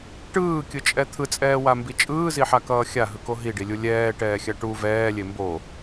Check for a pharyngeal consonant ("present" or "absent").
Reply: present